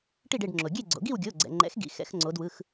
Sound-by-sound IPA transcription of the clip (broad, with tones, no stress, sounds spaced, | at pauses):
ʈ i˥˨ ɖ e˥˨ ɖ ŋ͡ǁ o˩ ɡʲ e˥˨ ɡ͡ǀ o̰˩˧ ɡ i˥˨ w ɡʲ o˩˧˩ ɡ͡ǀ ɛ̰˩ ŋ͡ǃ ɛ̰˩˥ x ɡ ḭ˩˧˩ x ɛ̰˩˧ x ŋ͡ǀ o˩˧ d w ɯ˩˧˩ x